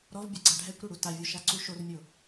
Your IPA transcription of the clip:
ɾ ɔ v bʲ a ɡ͡ǀ a ɖʱ ɛ kʷ ɾ o ɽ u t a vʲ o ʃ a ǀ u ʃ o r mʲ o

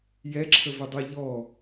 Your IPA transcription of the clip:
j ɛ ǁʰ ə v ɪ dˤ ɛ ʎ ɔ

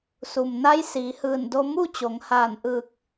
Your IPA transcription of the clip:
s u˩ m n a˧˥ j s iː˩˧ h ɯː˧˩ n d o˧ m u˥˨ t͡ɕ o˩˧ ŋ h aː˧˩ n ʔ ɯː˧˩ k̚

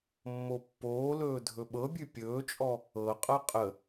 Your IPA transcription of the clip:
mː o pː oː l ɵː dʱ ɵ ɓ ɤ bʲ ʉ pʲ ɵː t͡ʃʼ ɔ | ɤ qʼ ɤ qʼ ə

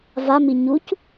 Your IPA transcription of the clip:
v a m i ɲ u c

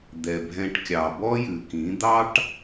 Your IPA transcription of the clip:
d̪ ɛ˨ bʱ ɛ̃˧ ʈ kʲ ɑ˨ b ɔ˦ j ʉ˨ k ĩ˨˦ d̪ ɑ˦ ʈ

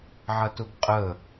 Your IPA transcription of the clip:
ʕ ɐ t ʊ ɡ qʼ ə

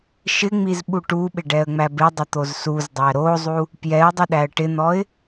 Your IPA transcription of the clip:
ʃ ɪ ŋ͡m i z ɓ u ʈ u ɓ ɪ ɖ ɛ ə̯ ŋ͡m æ b ɪ dˤ ɪ t̪ o z s u z dˤ æ ɾ o zˤ u | p j ɛ ʊ̯ dˤ ɪ ɗ æ ə̯ ʈ ɪ n̪ ɔ ɪ̯

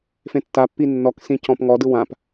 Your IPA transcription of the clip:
f ẽ tː a pː i nː ɔ k s ĩ c ɔ̃ p ŋ ɔ d ɯ w ã p

